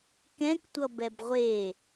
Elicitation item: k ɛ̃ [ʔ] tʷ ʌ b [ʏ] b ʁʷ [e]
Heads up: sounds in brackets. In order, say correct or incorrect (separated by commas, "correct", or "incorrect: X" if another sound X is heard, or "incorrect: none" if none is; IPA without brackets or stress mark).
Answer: incorrect: k, incorrect: ɛ, correct